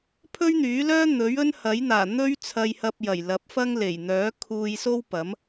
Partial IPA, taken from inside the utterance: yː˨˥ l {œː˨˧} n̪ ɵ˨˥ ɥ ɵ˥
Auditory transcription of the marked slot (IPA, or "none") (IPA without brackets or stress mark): œː˥